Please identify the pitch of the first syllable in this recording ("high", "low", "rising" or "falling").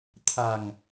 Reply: low